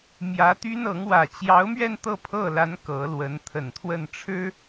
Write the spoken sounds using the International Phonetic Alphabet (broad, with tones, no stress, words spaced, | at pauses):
mjä˧˥t̪y˥nɤ˧˥ŋ wä˨˩t͡ɕjɑ˧˥ʊ̯mɥɛ˥˧n t̪ɤ˥˧pʰɤ˥˩la˧˥n kɤ˧˥lwə˧˥n t̪ʰə˨˩nt̪ʰwə˥˩nʈ͡ʂʰɻ̩˥